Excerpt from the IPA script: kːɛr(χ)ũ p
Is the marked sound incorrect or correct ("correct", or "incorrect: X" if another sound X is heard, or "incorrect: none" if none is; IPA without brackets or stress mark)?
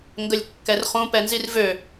correct